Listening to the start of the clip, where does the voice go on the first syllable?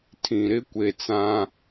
low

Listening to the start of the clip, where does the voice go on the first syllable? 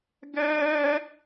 high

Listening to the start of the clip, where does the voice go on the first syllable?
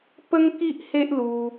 high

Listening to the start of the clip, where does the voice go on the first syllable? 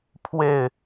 falling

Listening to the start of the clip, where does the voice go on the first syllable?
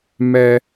high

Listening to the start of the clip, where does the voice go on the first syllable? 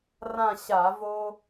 falling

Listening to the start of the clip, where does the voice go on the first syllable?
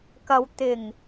low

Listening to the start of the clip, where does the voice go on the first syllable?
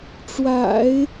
low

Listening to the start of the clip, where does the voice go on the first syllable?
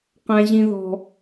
high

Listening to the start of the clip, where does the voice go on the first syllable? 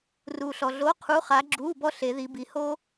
low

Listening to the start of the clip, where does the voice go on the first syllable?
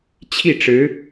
falling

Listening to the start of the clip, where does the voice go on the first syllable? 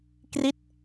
falling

